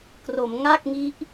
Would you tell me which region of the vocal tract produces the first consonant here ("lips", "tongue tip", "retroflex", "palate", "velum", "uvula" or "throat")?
velum